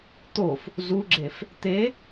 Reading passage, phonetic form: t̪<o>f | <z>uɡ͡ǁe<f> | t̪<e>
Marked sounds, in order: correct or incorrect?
correct, correct, correct, correct

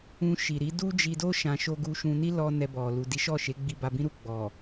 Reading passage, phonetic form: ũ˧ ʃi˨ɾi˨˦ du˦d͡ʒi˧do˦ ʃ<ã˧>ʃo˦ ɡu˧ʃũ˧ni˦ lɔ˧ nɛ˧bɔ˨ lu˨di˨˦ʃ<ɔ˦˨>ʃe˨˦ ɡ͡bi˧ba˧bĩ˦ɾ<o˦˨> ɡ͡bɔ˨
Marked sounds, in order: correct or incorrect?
correct, correct, incorrect: u˦˨

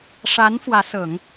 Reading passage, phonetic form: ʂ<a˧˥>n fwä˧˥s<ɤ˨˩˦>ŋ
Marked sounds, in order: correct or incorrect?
correct, correct

